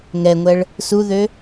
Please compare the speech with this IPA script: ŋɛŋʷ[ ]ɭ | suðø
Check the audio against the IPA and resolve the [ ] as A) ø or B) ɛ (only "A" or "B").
B